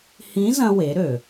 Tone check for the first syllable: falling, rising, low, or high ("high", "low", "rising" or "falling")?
rising